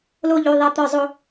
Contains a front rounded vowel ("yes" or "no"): yes